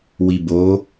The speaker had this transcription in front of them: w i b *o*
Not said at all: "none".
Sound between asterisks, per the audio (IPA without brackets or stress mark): o